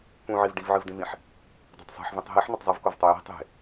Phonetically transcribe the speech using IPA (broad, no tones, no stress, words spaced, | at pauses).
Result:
pũʕiv ɖivʕɨvdĩvĩħ | dˤe̤tˤsˤe̤ħvĩtˤ ɦiħ nɵtˤzˤɨv kovtˤoji̤ tˤe̤